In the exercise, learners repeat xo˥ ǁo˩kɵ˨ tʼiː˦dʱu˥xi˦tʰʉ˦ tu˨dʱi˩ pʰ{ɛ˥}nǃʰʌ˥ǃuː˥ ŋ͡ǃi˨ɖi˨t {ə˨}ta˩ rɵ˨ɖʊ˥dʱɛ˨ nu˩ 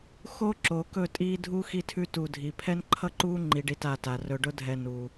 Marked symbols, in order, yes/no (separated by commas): yes, no